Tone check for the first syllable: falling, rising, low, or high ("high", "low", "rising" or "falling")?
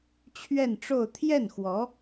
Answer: falling